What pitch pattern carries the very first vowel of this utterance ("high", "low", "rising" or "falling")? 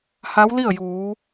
rising